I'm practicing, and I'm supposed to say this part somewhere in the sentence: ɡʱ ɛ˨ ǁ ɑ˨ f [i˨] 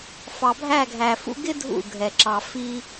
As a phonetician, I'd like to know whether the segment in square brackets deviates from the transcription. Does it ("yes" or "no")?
yes